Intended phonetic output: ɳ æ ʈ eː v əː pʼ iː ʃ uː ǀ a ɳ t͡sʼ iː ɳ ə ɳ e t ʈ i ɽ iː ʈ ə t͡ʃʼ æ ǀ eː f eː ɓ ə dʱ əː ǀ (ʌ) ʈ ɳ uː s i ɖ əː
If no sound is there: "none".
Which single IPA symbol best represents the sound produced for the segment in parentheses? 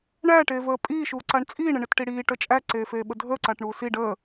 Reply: a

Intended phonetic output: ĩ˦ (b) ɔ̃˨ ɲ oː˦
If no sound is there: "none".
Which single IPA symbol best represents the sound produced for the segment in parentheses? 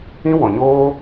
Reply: w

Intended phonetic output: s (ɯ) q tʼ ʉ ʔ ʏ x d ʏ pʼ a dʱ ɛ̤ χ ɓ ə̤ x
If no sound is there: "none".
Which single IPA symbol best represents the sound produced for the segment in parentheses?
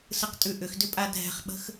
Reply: ɯ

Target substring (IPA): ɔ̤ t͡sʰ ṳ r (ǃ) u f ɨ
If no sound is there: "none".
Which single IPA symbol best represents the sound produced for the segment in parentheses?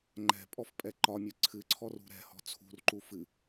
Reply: ǃ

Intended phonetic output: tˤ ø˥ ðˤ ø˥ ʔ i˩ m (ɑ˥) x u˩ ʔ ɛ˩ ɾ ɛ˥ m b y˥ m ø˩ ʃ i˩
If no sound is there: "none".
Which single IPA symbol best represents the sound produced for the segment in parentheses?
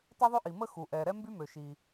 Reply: ə˥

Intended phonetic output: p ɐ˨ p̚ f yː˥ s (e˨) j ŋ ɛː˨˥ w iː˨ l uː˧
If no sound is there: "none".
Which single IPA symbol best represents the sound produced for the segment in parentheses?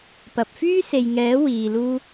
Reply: e˨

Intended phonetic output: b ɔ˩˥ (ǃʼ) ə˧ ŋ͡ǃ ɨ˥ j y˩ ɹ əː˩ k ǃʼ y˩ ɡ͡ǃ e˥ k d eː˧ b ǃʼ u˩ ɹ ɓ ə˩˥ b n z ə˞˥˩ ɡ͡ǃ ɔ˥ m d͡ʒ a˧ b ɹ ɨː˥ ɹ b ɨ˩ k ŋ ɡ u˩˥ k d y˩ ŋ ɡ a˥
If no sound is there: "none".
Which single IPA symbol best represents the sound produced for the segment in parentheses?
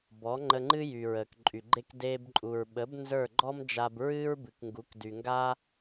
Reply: ŋ͡ǃ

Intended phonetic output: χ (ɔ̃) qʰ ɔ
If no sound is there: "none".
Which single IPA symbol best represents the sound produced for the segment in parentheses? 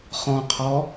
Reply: ɔ̃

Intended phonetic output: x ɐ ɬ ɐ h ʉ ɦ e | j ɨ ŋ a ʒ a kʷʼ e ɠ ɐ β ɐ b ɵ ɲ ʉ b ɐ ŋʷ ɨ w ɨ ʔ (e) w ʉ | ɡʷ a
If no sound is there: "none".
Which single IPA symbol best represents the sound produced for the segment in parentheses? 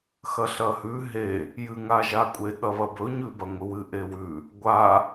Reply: e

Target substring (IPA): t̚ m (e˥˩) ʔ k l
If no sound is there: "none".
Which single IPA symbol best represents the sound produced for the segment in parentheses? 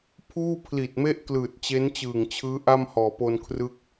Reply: e˥˩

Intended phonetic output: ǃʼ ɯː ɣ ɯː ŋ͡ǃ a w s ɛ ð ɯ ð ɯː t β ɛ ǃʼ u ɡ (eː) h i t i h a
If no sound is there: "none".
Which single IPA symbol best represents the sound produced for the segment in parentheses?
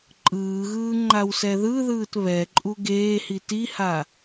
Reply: eː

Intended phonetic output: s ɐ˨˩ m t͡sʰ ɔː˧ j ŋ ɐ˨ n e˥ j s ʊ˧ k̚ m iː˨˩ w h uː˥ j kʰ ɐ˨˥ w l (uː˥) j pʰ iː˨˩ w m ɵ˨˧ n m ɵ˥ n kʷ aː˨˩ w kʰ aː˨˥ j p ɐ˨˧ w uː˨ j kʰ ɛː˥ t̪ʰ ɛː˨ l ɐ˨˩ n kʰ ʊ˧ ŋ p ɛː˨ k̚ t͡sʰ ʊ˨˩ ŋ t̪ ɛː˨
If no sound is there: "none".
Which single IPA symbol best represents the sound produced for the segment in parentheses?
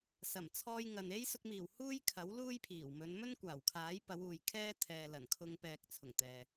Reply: uː˥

